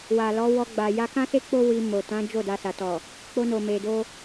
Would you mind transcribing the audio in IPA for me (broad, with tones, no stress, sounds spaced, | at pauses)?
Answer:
w a˨ l ɔ˨˦ w ɔ˧ ɡ͡b a˨ j a˧ k ã˦ s e˦ k͡p o˦ w i˧ m o˨ t ã˨˦ d͡ʒ o˦˨ d a˧ s a˨ t ɔ˨ | k͡p o˧ n o˨ m e˨ d o˧